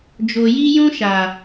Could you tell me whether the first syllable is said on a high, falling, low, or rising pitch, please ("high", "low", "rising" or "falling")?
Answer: low